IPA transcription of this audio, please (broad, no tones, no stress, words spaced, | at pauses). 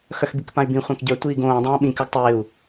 xœxbikpãy̯bĩ χʷãkɟœ tʷiːɡõː dˤãːɓĩ kœɡtˤɪːu̯